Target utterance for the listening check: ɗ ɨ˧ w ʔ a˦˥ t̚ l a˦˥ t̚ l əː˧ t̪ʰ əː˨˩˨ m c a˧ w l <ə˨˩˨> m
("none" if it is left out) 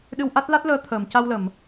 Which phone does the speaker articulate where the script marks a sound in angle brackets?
ə˨˩˨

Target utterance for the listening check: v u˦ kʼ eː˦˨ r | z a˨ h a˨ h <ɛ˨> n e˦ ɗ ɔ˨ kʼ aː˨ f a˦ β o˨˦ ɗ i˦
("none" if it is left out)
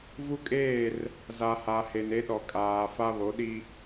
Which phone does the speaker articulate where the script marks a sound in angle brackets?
e˨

